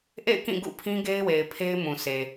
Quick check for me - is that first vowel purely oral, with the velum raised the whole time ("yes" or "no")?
yes